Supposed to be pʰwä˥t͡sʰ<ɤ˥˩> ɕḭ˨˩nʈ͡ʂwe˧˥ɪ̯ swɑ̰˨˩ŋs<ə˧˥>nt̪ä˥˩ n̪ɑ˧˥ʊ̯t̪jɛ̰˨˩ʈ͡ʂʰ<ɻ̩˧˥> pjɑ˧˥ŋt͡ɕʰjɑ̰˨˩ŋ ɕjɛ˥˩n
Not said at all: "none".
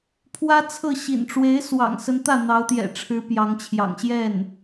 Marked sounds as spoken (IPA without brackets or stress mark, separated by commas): ɤ˥˩, ə˧˥, ɻ̩˧˥